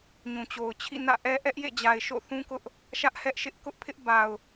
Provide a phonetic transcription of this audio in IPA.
ɲũ˨t͡ɕo˨ʊ̯t͡ɕʰḭ˦˨ nä̰˦˨ʔɛ˦ ʔɛ˦ʔjḛ˦˨d͡ʑa˨ɪ̯ ʃo̰˦˨ θũ˦kʊ˦ʔ | ʃä˦ʔ hɛ˦ʔʃɪ˦ʔ kʊ˦ʔpʰɪ˦ʔ ba˨ʊ̯

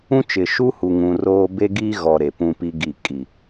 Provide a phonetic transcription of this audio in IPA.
ũ˦t͡ʃɪ˨ ʃu˦ hu˨ŋũ˨roː˦ be˦ɡiː˦ɣɔ˨ ɾe˨pũ˦pi˦ɡi˦˨ kʼi˨

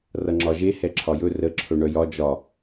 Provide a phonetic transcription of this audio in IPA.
rʌŋ͡ǁɒʒe hɛǁʰɒjɵ rə ǁʰɵɳœjɒ d͡ʒɒ

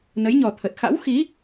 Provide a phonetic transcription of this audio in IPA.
nə˨˦jɲɔ˨˩t̪ʰə˨˩t̚ xa̰˧˥wxi˨˦

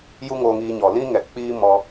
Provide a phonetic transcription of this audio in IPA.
ju˧ ŋoː˧ŋiː˧ɲɔ˨lĩ˦ ŋɛ˨k͡piː˦ mɔ˧

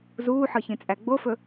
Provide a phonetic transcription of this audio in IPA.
zuːħɤçĩt͡sʼæ ɡ͡bofɵ

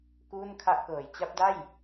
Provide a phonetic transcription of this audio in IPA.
kuː˥˩nkʰa˥˩ʔkɤː˨˩j t͡ɕa˦˥p̚da˥˩j

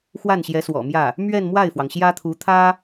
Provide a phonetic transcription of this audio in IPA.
xwa˥˩nɕjɛ˧˥swɔ̰˨˩mjä˥˩ | mɥɛ˥˧nmwa˥˩ɪ̯fwɑ˩ŋ ɕjä˥t̪ʰu˧˥t̪ʰä˥

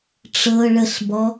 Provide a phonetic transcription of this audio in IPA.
ʈ͡ʂɤ ɭəɬbɔ

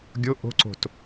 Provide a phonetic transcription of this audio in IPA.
ɡʲo ʔo̤ǀo̤t

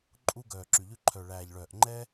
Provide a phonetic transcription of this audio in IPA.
ǃʼu˧ ɡœː˨ǁy˨ʎʉ˧ ǃʰœ˨ɭæː˨ʎɭœː˨ʔ ŋ͡ǃɛ˦

